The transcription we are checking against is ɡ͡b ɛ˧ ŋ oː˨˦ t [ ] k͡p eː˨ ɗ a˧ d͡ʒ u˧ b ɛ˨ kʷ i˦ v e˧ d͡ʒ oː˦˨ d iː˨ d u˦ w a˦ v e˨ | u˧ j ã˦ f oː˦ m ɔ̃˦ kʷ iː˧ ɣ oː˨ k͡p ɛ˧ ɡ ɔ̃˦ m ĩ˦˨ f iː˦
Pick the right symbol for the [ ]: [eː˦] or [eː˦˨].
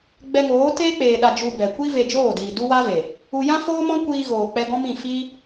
eː˦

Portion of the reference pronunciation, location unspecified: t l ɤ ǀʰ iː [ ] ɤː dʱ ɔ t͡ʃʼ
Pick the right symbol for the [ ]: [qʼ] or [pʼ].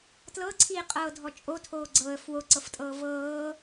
qʼ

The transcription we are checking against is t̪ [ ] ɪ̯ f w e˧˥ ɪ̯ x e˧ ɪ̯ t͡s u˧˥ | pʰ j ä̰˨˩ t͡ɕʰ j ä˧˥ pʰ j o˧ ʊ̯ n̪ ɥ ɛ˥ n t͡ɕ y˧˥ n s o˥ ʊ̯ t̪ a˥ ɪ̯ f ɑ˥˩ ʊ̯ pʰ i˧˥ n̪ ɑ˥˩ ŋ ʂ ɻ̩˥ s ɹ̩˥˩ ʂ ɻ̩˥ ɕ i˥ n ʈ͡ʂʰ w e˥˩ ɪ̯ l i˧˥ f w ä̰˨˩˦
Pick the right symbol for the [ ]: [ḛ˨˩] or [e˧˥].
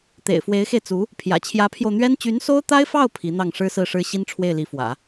ḛ˨˩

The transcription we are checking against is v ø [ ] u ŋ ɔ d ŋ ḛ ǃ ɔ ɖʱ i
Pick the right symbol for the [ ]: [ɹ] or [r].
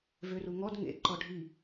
r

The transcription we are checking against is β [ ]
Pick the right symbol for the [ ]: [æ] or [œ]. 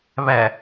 æ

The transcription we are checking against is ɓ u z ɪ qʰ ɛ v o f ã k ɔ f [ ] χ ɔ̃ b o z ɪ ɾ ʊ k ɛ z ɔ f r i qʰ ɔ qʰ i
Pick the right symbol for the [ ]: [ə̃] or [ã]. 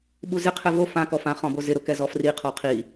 ã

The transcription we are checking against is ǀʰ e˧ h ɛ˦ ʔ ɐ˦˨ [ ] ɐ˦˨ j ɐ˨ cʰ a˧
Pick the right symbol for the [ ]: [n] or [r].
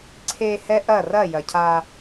r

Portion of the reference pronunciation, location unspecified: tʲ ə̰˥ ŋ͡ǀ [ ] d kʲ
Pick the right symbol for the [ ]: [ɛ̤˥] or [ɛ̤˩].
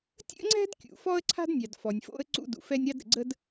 ɛ̤˥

